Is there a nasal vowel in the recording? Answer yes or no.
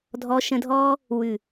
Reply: yes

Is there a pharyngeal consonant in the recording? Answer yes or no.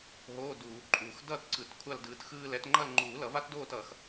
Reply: no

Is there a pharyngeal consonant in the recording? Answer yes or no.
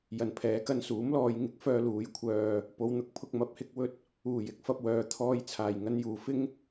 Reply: no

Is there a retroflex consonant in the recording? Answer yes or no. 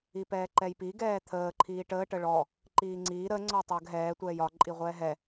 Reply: yes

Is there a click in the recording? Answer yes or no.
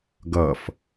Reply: no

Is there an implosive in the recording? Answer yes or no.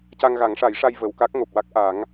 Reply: no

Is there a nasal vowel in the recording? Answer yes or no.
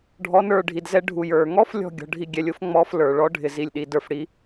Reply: no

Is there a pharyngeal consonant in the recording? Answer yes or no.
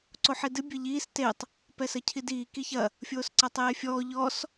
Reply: yes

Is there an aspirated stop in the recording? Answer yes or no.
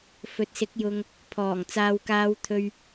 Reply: yes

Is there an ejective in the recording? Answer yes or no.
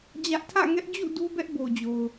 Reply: no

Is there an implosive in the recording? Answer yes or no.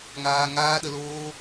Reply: yes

